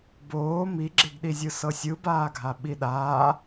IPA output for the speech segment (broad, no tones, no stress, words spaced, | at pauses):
boː miɡ͡ǁeɡɗizʲɯ sɤsʲɯbaːɡʱa ɓiɗaː